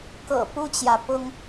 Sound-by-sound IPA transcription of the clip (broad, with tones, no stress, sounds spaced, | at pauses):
k ɤ̰˨˩ p u˥ t͡ɕ j ä˨ p ʊ˥ ŋ